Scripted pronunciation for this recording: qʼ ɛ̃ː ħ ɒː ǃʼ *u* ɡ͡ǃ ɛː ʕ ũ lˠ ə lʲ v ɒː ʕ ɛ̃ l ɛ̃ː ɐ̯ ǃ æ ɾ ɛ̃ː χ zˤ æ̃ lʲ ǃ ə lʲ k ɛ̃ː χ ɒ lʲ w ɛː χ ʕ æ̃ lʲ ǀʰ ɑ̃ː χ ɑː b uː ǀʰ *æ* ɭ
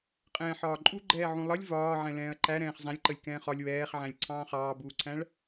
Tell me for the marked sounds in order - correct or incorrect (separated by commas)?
correct, incorrect